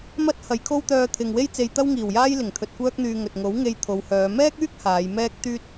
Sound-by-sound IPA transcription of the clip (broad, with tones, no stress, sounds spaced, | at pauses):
m ɐ˥ t̚ h ɐ˨˧ j kʰ o˥ w t̪ œː˧ t̪ʰ ɪ˨ ŋ w e˥ j t͡s e˧ j t̪ ɐ˥ w ŋ iː˨˩ w j aː˥ j l ɪ˨˩ ŋ t̪ʰ ɵ˨ t̚ kʷ œː˥ k̚ n̪ yː˧ ŋ ɵ˨ t̚ ŋ o˨˥ w ŋ e˧ j t̪ʰ o˨˧ w h œː˨˧ m ɛː˥ k̚ yː˥ k̚ h aː˨˧ j m ɛː˥ k̚ t̪ yː˥ t̚